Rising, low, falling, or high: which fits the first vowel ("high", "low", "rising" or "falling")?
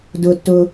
high